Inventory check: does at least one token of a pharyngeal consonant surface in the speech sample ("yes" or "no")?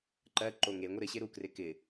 no